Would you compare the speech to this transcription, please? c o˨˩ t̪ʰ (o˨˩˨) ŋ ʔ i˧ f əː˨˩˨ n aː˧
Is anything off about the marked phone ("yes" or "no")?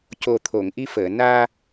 no